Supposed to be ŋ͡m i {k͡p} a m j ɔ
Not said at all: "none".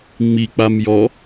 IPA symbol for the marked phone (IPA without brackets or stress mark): k͡p